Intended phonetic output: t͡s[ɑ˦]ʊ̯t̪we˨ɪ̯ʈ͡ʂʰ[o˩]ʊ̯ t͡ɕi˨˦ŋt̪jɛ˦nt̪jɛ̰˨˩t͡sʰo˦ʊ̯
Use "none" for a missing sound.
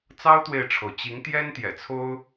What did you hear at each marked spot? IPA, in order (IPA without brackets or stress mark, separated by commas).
ɑ˦, o˩